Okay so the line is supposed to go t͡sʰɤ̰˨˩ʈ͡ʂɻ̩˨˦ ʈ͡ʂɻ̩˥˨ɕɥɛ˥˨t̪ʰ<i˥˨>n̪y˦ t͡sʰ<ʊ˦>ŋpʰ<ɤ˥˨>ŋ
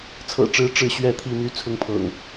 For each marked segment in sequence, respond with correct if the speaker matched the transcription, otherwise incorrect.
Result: correct, correct, incorrect: ɤ̰˨˩

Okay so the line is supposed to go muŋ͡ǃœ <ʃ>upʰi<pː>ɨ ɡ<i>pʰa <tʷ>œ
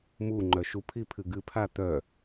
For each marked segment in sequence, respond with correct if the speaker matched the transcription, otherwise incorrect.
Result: correct, incorrect: pʰ, incorrect: ɨ, incorrect: t̪

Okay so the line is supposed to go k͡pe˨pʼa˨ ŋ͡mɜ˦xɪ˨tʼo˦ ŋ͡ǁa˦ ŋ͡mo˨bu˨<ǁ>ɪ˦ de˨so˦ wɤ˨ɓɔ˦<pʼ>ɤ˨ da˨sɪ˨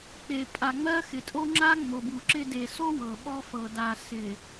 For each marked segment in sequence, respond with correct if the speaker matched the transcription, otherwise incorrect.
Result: correct, incorrect: f

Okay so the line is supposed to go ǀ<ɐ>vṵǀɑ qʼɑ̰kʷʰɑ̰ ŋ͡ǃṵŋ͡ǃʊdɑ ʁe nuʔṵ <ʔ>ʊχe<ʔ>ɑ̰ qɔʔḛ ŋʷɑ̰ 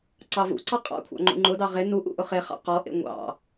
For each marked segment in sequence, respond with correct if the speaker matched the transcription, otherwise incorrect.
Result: incorrect: ɑ, correct, incorrect: χ

